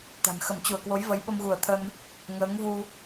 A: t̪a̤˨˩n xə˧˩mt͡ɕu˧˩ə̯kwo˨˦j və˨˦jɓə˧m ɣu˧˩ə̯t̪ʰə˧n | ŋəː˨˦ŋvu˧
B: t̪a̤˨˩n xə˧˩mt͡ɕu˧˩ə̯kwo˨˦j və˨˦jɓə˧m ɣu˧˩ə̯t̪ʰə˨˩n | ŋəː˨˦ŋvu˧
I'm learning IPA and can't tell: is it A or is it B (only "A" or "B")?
A